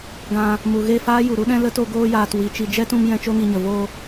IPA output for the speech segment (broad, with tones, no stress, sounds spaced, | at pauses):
ɡ ã˧ | m u˨ ɣ e˦˨ f aː˦ j u˨ ɾ u˦ ɗ ɛ̃˦ l ə˦ t o˧ ɡ oː˧ j aː˨ t w i˨ t͡ʃ i˨ d͡ʒ ɛ˦ t ũ˧ m j ɛ̃˦ t͡ʃ o˦ ŋ i˧ ɲ ə˨ v o˧